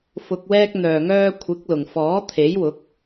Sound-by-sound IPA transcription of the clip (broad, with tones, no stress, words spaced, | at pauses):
fʊ˨k̚wɛː˧k̚n̪œː˨˩ŋœː˧ kʷʰɪ˨˥k̚lʊ˨˩ŋfɔː˨˥ t̪ʰe˨˥jwʊ˨˥k̚